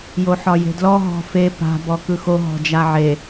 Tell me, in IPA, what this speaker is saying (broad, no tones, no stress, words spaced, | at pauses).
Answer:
joħɒje̤dlɔ ɦɔ̤fe pa̤ bɔkɯxo ɦɔ̤d͡ʒaʕe